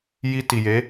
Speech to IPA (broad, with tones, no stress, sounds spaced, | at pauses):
j i˧ t i˨ j e˨˦